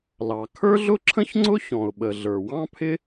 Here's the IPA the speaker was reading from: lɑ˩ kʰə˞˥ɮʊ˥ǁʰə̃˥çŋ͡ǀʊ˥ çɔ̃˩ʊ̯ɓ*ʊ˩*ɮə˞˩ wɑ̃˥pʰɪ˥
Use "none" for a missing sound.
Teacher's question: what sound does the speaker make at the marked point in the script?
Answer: ə˩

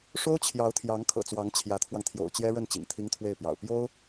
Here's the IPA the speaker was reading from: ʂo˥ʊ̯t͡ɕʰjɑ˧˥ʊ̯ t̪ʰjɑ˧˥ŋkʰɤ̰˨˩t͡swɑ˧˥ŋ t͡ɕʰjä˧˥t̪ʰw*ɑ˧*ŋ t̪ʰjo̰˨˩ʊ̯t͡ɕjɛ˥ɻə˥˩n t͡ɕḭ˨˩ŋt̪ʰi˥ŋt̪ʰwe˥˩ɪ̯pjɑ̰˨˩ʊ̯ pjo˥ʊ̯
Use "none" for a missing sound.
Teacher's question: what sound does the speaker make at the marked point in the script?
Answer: ɑ˧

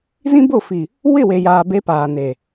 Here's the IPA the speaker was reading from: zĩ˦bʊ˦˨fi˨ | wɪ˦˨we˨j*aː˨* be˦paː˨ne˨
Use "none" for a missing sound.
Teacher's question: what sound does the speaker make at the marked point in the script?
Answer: aː˨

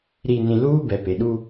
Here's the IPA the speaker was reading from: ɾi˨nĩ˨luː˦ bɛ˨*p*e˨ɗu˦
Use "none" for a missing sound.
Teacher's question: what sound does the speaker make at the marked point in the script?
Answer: p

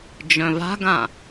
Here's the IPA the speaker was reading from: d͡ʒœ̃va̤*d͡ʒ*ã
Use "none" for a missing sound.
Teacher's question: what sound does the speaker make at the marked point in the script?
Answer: ɡ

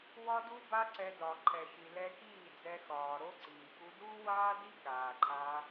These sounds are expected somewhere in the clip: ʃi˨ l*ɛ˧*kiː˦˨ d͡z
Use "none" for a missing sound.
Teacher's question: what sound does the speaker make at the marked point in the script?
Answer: ɛ˧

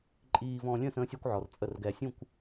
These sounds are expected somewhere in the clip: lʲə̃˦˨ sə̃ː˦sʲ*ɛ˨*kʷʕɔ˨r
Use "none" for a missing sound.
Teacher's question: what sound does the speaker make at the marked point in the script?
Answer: ɛ˦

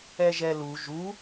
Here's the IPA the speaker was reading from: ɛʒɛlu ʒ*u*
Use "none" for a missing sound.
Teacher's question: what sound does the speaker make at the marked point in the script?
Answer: u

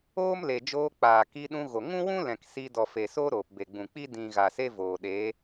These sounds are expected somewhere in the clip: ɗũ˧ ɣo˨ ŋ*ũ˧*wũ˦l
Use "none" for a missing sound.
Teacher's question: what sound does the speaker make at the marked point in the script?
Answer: ũ˦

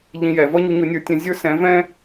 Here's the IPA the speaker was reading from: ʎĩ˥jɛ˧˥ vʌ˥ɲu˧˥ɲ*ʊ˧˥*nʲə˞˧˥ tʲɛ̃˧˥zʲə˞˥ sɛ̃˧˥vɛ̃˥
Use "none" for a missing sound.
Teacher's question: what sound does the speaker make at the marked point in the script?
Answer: ʊ˧˥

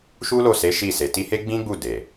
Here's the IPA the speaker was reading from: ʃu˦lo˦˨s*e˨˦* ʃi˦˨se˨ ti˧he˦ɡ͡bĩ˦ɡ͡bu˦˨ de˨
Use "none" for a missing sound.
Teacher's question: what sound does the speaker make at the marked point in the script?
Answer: e˨˦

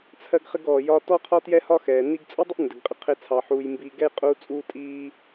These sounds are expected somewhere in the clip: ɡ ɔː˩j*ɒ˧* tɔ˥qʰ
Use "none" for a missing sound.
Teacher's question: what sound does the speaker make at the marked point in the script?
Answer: ɒ˧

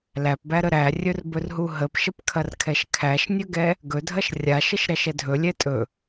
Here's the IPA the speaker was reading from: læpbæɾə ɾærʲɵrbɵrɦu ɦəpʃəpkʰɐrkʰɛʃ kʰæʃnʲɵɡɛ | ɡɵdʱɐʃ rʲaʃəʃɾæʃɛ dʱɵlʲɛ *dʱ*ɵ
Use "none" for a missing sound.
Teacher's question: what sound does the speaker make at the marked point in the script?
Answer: tʼ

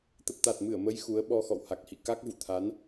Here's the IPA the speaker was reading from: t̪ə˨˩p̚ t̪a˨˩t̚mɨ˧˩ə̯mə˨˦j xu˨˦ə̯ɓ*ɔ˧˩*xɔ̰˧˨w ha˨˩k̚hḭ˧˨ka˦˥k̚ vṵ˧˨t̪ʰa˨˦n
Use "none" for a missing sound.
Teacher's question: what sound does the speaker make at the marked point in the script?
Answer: ɔ˧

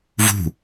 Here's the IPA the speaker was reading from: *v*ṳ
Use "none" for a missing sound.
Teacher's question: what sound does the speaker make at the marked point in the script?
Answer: v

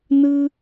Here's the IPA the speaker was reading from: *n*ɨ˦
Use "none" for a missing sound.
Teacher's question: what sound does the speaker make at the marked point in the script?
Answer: n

